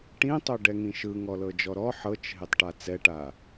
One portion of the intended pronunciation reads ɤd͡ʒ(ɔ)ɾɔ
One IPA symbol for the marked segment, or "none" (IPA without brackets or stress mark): ɔ